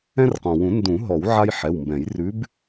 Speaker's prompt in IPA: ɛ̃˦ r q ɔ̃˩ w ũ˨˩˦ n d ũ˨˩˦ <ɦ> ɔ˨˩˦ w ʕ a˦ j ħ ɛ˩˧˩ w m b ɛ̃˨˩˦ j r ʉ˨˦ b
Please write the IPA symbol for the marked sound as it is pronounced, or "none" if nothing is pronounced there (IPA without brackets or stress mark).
ɦ